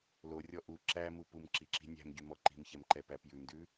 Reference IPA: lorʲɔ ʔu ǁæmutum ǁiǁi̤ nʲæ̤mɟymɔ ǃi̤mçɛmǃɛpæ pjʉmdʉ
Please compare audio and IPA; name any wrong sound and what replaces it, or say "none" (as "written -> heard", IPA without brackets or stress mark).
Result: t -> p